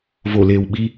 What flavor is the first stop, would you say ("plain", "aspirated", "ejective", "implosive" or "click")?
implosive